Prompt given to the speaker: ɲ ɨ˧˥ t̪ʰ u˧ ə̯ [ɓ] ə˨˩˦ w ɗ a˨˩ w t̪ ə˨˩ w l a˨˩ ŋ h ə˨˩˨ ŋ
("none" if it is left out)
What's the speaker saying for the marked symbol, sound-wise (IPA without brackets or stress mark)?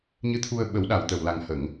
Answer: ɓ